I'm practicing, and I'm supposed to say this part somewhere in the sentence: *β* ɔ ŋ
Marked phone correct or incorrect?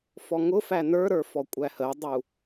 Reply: incorrect